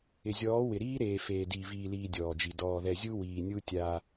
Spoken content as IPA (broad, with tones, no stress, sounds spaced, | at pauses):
ɪ˨ zʲ ɔː˨˦ w ɪ˨ ɾ iː˦ ɾ eː˨ f eː˨ d iː˨ v iː˨ l iː˨ dʲ ɔː˨ d͡ʒ i˨ d ɔː˨ ð ɛ˨ zʲ u˦ w iː˨ nʲ u˦ tʲ a˦